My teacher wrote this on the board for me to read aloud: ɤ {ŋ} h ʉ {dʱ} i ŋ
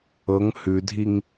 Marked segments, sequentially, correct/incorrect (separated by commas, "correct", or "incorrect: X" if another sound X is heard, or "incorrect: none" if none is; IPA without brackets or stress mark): correct, correct